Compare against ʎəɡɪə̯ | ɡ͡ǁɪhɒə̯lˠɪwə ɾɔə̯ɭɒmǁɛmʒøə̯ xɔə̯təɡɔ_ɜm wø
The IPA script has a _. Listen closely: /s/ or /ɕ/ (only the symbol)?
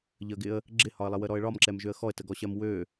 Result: ɕ